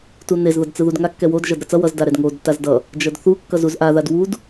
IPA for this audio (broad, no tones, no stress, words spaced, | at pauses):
tunez ðʌdt͡sɯðudŋa kːɛwod ʒʌdɾʌt͡sʌ wʌz daɾɛdŋod tazdʌ | d͡ʒʌdθu kːʌzuzʔa ðadwud